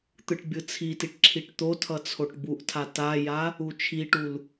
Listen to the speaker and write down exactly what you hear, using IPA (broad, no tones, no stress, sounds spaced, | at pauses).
t̪ ɯ ʈ bʲ ɯ t͡sʰ i t i ʈ ǁʰ i ʈ t̪ o tʰ ʌ t͡sʰ o ʈ b u ʔ tʰ a t a j a | u t͡ʃʰ i ʈ u l